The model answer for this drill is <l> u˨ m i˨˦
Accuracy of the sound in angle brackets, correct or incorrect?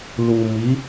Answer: correct